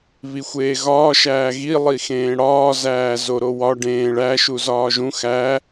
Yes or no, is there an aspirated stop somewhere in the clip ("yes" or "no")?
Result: no